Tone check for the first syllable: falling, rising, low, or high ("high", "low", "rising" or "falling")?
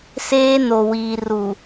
high